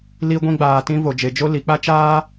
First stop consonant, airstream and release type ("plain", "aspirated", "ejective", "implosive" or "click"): plain